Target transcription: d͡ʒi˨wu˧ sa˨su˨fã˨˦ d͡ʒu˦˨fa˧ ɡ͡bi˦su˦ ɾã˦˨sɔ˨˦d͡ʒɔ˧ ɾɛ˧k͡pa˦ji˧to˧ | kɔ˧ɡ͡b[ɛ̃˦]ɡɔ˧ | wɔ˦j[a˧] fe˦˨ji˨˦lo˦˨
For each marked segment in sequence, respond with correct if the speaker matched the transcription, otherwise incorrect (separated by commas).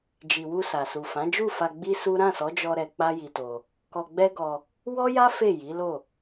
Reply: incorrect, incorrect